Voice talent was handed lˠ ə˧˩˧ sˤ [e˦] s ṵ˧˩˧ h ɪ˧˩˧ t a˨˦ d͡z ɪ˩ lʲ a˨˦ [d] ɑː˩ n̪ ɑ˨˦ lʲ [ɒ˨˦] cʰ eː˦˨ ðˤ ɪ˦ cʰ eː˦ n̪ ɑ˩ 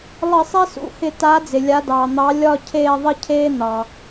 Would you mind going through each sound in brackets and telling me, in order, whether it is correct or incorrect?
correct, correct, incorrect: ɒ˦˨

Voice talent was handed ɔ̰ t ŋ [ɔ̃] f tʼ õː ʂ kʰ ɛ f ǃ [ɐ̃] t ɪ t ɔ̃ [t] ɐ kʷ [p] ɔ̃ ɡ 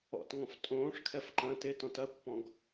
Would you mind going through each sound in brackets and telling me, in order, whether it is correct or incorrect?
correct, correct, correct, correct

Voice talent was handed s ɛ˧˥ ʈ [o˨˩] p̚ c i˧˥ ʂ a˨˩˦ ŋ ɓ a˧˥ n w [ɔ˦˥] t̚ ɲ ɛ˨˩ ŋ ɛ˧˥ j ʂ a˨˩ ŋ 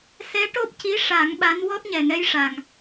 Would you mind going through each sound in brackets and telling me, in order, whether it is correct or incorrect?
incorrect: o˦˥, correct

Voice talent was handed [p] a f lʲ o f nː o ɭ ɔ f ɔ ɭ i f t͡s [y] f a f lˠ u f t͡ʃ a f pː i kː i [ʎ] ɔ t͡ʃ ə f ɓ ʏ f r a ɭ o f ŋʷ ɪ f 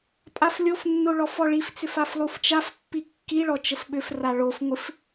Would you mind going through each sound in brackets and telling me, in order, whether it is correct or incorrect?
incorrect: pʼ, incorrect: ʏ, incorrect: ɭ

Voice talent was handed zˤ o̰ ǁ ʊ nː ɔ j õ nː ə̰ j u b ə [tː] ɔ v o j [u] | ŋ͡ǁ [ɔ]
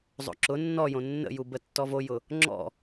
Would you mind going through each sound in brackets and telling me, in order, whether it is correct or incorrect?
correct, incorrect: ʊ, incorrect: ɔ̰

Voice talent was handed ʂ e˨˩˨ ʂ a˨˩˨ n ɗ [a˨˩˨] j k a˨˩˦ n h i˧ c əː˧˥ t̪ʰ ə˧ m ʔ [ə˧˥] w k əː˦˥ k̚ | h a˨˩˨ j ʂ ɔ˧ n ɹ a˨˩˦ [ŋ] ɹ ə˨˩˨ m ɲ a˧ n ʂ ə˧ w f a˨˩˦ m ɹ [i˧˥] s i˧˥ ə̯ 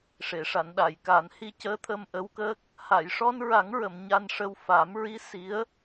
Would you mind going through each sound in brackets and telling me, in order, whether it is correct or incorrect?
correct, correct, correct, correct

